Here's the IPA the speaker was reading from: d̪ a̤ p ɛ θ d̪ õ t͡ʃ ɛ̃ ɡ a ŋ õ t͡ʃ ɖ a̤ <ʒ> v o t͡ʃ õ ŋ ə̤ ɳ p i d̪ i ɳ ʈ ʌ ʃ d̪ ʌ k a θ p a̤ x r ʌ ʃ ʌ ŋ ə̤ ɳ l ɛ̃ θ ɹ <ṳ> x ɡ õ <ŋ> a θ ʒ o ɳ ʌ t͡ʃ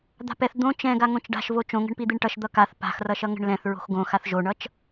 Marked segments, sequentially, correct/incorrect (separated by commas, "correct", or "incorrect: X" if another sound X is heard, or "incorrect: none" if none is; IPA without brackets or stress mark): incorrect: ʃ, incorrect: o̤, incorrect: x